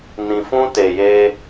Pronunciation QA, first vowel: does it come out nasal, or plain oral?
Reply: nasal